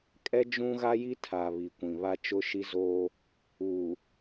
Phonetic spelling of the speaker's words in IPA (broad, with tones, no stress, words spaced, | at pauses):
kʼɛ˦ d͡ʒũ˦ɣa˦ji˦tʰa˨ βi˨ kʷĩ˨βa˦ t͡ʃʊ˦ʃi˦zoː˦ | uː˨